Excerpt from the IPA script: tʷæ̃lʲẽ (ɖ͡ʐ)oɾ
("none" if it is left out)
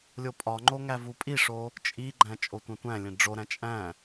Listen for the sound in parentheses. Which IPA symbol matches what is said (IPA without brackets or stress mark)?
ɖ͡ʐ